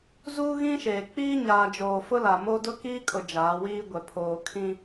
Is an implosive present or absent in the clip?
absent